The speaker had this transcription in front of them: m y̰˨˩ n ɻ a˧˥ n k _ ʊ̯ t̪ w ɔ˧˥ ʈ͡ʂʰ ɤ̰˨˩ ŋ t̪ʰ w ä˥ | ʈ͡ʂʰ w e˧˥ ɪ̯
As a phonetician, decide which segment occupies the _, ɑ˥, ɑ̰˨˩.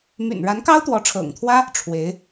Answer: ɑ˥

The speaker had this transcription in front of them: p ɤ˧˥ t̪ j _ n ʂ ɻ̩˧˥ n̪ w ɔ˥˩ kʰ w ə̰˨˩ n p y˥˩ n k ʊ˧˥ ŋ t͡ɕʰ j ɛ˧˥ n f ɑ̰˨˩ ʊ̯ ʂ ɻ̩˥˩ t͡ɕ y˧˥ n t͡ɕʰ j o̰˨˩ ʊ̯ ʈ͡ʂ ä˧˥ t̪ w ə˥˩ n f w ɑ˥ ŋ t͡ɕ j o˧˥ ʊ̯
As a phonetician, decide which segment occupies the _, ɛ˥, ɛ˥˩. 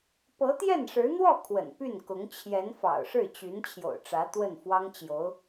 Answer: ɛ˥˩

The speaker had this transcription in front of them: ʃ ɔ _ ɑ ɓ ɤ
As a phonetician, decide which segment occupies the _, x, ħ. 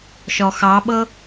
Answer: x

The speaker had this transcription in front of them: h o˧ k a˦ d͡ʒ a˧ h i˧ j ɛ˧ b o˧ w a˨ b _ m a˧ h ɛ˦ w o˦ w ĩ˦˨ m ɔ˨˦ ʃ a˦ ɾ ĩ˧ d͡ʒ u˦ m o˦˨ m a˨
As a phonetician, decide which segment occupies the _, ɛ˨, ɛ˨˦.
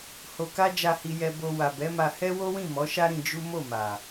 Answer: ɛ˨˦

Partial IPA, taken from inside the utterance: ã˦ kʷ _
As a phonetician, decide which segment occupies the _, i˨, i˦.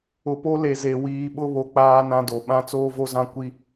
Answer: i˦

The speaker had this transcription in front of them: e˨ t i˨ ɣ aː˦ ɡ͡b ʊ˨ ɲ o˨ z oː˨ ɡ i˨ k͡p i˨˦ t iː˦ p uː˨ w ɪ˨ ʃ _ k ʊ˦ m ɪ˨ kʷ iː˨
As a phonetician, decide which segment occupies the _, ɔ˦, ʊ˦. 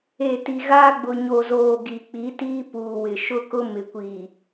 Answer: ʊ˦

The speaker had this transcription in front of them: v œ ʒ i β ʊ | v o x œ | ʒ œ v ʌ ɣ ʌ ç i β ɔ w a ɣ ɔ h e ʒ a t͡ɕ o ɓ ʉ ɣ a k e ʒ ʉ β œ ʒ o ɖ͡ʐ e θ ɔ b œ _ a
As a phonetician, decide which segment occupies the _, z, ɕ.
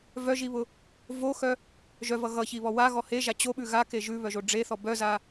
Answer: z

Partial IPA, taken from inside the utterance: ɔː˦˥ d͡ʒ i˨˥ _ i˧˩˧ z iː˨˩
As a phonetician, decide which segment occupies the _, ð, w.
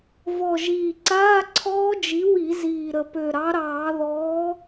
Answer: w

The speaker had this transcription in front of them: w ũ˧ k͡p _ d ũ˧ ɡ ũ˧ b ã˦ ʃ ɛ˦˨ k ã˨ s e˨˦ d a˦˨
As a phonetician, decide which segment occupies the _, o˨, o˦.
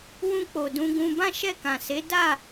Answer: o˨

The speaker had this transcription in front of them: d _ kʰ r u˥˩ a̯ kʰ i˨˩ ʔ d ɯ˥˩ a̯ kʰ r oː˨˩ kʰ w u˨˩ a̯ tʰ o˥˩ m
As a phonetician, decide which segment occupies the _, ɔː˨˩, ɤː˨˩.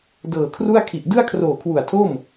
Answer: ɤː˨˩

